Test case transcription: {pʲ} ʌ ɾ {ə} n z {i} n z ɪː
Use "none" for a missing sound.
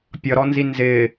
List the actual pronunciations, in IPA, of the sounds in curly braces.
pʲ, ɔ, i

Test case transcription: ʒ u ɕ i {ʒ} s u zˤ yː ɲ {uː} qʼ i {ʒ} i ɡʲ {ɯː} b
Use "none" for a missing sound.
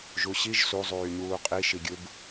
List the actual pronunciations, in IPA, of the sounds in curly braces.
ʒ, uː, ʃ, ɯ

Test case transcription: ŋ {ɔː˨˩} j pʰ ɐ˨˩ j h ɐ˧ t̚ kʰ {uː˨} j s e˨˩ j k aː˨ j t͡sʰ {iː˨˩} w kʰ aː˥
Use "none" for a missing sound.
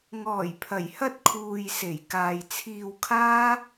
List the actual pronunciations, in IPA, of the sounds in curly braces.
ɔː˨˩, uː˨, iː˧

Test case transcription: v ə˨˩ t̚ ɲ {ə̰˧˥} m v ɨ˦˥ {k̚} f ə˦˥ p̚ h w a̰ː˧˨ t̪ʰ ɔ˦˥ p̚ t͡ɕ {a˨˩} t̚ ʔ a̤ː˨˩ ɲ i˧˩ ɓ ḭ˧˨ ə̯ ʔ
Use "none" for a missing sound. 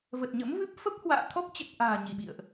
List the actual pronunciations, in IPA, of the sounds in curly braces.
ə̰˧˥, p̚, ə˨˩

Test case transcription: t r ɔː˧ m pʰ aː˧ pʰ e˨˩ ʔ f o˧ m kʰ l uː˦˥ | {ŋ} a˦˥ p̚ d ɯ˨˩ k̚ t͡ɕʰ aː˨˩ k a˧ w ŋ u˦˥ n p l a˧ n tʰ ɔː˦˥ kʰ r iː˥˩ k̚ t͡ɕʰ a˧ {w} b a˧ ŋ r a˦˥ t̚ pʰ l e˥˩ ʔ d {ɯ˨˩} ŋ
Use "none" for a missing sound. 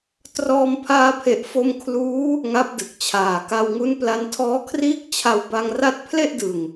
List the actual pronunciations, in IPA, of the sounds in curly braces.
ŋ, w, ɯ˨˩

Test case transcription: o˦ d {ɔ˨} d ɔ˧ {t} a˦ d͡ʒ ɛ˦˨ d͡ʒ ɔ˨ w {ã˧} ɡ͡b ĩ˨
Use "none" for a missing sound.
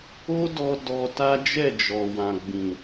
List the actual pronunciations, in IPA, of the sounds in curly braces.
ɔ˧, t, ã˨

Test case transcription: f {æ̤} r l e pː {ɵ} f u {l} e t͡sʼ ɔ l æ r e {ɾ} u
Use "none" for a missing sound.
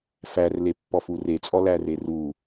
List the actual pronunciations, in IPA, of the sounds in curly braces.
æ, ɔ, r, r

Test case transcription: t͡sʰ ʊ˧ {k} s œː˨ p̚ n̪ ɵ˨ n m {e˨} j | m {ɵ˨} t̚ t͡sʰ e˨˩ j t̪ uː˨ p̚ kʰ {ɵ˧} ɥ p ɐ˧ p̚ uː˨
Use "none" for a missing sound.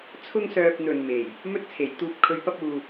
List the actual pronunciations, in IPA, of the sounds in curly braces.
ŋ, e˨˩, ɵ˨, ɵ˨

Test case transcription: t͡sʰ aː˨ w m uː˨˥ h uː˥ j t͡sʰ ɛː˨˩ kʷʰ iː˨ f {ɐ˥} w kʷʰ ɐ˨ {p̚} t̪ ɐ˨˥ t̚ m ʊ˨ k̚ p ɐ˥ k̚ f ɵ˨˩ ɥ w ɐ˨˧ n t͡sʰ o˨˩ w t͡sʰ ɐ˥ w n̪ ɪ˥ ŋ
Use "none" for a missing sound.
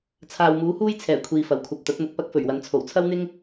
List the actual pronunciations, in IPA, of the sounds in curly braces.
ɐ˨˩, p̚

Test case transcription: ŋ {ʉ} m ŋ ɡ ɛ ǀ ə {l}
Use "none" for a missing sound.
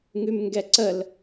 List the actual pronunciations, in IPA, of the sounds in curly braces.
ʉ, l

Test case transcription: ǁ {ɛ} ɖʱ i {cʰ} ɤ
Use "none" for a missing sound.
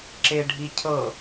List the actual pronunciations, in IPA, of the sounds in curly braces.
e, cʰ

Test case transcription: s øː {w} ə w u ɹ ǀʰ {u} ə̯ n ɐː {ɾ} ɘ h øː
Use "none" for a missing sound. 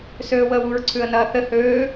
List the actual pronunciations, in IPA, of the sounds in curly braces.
w, ʉ, θ

